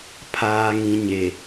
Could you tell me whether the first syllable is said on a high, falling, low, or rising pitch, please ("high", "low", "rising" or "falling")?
low